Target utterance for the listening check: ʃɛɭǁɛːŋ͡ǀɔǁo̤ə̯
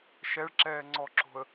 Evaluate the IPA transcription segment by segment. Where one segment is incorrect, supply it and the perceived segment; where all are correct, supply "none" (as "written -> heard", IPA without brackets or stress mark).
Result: none